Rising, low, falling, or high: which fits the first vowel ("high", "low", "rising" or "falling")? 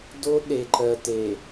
high